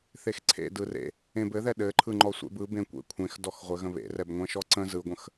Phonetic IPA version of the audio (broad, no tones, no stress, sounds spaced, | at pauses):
θ e x ǀʰ ḛ d ɯ r ḛ | ẽ b ɘ ð ɛ ɗ ɘ ǃʰ ɯ ŋ͡ǃ ɔ sʷ ḛ b ɯ b ẽ kʷ ḛ kʷʰ ẽ x d ɔ x ʁʷ ɘ ɣ ə̃ β ḛ r ɛ b ŋʷ ɛ̃ ʃ ɔ ǀ ə̃ z ɯ ɡʷ ə̃ x